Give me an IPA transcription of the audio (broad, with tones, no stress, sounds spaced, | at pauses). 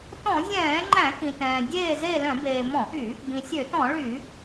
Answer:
t ɔ̃˧˩˧ zʲ ɛ̃ː˧˩˧ ŋ͡ǃ æ̃˧˩˧ k ĩ˩ t ɛ̃ː˩ dʲ eː˦˨ z e˦˨ l œ̃˧˩˧ b eː˩ m ɔ̃˧˩˧ ʔ y˧˩˧ | b ĩ˩ sʲ ø˧˩˧ t ɔ̃˧˩˧ ɭ y˧˩˧